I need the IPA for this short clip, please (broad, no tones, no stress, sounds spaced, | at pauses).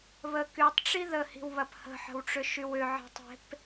β ə k y tˤ ʈ͡ʂ i ð ə h i̤ w β ɐ p h ə̤ ħ ə̤ w ʈ͡ʂ ʏ ʃ y w ʏ ʕ i̤ tˤ e̤ p